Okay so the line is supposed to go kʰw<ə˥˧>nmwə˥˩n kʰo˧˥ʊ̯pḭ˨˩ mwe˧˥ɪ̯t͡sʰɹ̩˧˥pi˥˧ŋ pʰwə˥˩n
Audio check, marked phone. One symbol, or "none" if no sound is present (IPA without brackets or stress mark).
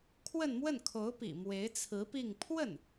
ə˥˧